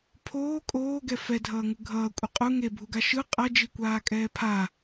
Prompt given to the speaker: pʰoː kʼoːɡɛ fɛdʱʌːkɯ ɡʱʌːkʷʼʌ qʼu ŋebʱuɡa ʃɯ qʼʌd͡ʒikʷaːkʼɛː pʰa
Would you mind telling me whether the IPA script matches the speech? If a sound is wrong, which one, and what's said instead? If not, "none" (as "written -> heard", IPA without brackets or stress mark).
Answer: k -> ŋ